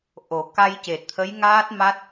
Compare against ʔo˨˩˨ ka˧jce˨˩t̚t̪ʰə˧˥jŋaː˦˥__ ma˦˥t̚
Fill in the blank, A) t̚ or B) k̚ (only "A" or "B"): A